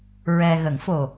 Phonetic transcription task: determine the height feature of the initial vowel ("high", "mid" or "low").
mid